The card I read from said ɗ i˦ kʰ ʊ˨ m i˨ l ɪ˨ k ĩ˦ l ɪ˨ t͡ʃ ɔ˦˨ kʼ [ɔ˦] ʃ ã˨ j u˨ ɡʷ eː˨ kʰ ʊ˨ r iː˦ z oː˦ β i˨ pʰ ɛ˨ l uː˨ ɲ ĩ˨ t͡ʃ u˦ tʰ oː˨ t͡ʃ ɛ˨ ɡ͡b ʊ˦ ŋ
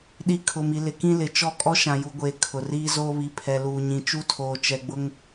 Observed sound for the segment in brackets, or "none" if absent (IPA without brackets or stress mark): ɔ˦